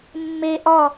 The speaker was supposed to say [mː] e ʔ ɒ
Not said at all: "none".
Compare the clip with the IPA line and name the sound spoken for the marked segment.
mː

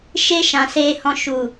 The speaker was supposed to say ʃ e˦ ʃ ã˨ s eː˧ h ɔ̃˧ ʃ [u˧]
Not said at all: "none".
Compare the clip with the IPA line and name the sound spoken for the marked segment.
u˨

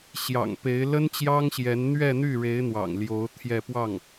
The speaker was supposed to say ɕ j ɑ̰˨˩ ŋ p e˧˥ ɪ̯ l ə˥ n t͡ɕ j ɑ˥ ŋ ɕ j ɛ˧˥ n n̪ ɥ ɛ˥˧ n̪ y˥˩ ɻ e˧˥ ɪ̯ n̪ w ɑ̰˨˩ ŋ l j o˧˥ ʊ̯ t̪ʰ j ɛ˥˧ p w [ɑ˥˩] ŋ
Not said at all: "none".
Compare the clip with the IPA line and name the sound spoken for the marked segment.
ɑ˥˩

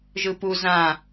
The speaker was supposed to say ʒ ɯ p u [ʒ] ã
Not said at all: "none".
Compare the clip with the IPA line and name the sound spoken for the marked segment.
z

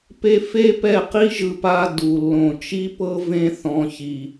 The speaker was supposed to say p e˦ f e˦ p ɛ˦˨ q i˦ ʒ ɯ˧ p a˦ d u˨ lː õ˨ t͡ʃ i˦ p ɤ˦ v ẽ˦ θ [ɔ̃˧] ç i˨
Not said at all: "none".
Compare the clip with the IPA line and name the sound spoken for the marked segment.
ɔ̃˧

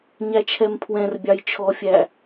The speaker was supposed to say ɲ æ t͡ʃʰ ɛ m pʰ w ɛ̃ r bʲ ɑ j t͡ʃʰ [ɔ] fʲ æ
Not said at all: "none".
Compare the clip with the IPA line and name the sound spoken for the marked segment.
ɔ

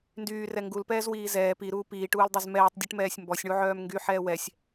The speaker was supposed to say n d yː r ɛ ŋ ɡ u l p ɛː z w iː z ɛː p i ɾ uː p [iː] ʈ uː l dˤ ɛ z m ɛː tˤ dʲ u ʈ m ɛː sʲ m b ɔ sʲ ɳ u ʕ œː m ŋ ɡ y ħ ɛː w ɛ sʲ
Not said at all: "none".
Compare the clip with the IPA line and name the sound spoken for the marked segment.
iː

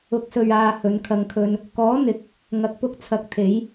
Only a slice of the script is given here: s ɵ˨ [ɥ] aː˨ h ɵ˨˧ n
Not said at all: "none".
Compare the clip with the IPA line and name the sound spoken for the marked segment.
ɥ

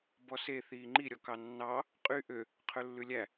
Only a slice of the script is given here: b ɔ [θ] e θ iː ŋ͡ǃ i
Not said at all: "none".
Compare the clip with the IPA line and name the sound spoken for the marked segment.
s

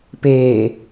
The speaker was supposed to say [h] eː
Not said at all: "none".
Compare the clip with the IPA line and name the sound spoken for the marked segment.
p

